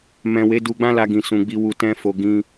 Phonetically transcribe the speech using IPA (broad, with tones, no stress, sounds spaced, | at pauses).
m ɛ̃˨ w e˨˦ d u˧ ɡ͡b ã˦ l a˧ ɡ ĩ˨ s ũ˨ ɡ͡b i˧ w u˧ t ɛ̃˦ f o˧ ɡ ĩ˧